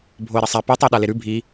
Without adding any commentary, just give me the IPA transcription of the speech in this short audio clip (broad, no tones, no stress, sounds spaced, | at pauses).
bʱ o ɪ̯ ɾ ɐ sˤ a p ɨ tˤ e ɗ a l e ɾ ʉ bʱ i